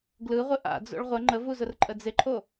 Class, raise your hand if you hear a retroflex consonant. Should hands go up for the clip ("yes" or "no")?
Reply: yes